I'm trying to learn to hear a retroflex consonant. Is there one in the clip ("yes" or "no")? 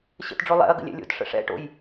yes